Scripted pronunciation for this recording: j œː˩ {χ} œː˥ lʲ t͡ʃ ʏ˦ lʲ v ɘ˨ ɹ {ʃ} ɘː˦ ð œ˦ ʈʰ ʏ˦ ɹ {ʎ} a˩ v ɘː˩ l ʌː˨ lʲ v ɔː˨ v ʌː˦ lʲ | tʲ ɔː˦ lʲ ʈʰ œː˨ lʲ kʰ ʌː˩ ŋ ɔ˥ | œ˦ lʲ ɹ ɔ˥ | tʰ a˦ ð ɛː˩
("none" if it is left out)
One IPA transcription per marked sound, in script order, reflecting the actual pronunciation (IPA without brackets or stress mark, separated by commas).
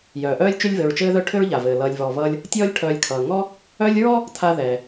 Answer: ʔ, t͡ʃ, ʎ